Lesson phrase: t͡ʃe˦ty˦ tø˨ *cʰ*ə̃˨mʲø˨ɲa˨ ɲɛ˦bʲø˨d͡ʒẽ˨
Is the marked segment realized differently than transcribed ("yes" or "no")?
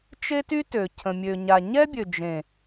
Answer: no